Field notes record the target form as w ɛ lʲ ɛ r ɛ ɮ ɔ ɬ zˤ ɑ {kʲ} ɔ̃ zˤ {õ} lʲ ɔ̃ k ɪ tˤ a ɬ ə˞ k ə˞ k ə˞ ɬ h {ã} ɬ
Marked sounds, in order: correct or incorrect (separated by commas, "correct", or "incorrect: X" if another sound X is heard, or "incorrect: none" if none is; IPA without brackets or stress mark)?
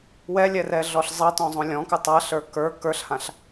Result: incorrect: t, correct, correct